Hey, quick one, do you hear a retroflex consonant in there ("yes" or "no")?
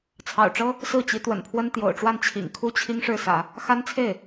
yes